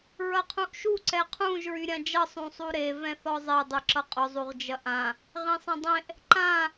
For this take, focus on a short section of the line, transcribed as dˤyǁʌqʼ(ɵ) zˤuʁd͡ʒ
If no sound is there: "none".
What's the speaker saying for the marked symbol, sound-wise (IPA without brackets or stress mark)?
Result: ɵ